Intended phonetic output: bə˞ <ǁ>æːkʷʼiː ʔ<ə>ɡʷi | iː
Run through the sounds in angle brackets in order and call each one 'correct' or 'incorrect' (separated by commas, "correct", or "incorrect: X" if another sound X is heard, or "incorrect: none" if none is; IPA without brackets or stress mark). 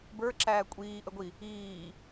correct, correct